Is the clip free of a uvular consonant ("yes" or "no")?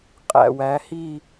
no